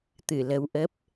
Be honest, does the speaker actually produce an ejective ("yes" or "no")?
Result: no